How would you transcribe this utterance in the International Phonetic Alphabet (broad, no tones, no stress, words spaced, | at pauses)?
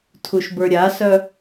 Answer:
tʰuʃbə˞ɾʲasœ